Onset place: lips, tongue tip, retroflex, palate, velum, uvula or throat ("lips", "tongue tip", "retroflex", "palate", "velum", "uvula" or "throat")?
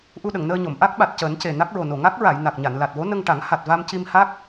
throat